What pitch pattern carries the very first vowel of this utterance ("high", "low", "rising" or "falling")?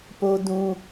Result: high